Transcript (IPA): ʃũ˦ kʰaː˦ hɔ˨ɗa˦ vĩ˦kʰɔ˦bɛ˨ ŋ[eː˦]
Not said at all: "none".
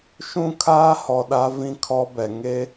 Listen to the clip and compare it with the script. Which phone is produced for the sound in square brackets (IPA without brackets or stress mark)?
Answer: e˦